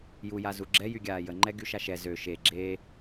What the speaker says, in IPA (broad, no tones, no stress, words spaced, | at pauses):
jujazu ɡ͡ǁɛjyɡʲaː jəŋ͡ǃɛɡyʃa ʃɛ zø ʃe ɡ͡ǁe